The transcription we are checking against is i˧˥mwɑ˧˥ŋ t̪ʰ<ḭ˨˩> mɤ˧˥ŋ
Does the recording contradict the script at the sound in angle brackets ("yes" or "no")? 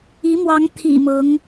no